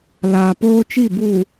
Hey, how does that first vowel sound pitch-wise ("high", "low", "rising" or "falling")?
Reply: low